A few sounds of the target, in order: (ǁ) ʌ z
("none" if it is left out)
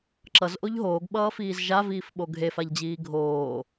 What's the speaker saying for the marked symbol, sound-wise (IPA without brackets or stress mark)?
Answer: ǁ